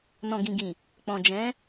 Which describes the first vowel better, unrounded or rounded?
rounded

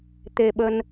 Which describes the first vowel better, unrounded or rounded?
unrounded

